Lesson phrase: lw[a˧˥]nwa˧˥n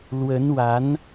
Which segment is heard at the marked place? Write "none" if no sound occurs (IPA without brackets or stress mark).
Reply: ə˧˥